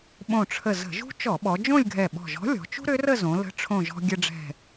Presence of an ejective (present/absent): absent